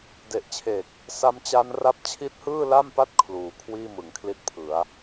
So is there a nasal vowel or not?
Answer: no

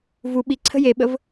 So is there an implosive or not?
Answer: yes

